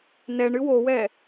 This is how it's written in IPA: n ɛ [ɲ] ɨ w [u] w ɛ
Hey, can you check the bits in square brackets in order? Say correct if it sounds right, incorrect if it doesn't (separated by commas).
incorrect, incorrect